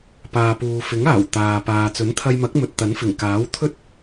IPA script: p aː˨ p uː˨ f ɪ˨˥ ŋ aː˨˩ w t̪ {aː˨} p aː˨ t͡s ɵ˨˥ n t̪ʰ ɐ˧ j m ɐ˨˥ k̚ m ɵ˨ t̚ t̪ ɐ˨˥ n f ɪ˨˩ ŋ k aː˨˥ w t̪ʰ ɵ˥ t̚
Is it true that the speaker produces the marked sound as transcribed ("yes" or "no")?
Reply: yes